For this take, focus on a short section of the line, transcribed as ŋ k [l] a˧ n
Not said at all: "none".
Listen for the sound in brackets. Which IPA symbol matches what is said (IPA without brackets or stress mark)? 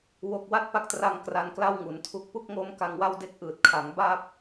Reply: r